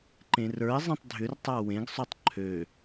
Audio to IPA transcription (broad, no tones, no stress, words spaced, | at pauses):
ǃẽrə˞ɪ̯zˤɛ̃tˤ dʱʏrtˤa wẽɡsˤɵtˤ ǃʰø